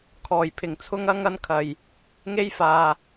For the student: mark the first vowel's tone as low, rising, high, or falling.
low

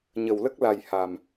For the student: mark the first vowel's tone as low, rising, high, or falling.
low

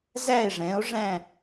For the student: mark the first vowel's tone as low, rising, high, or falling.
falling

